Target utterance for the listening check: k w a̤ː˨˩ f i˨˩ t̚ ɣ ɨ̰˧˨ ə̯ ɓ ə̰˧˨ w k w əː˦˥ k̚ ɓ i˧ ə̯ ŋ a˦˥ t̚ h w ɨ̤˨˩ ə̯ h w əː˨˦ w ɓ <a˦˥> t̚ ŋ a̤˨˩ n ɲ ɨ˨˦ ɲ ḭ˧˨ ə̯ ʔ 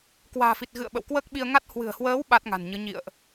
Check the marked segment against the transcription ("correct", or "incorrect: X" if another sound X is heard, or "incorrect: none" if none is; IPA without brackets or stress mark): correct